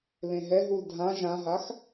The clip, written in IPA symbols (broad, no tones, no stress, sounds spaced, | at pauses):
l ẽ ɦ ɛ ɦ u l dʱ ã ʒ ã ɦ a x